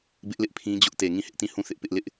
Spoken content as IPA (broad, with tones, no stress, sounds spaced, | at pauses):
b ɪ˦ ʔ l ɪ˦ ʔ pʰ ĩ˦ d͡ʑ ʊ˦ ʔ t e˨ ŋ ĩ˦˨ h ɪ˦ ʔ t ĩ˦˨ h ũ˦˨ θ ɪ˦ ʔ p ɪ˦ ʔ l ɪ˦ ʔ